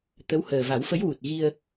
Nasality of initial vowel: oral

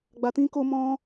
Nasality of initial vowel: oral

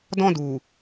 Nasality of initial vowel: nasal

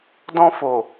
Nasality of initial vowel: nasal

